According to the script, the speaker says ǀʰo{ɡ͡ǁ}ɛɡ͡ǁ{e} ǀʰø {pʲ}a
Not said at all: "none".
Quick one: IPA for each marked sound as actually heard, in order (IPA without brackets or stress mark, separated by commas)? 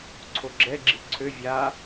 ɡ͡ǁ, i, vʲ